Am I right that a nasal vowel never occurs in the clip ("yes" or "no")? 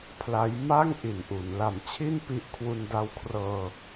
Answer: yes